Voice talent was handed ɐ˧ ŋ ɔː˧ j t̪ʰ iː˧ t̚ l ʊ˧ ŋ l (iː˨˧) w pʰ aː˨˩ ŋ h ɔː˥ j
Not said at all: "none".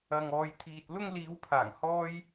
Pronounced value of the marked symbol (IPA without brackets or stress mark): iː˨˧